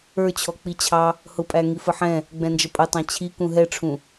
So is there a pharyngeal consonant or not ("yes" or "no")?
yes